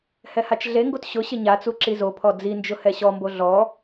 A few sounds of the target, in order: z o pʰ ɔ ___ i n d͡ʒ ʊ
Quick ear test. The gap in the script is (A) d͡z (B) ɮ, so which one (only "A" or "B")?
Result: A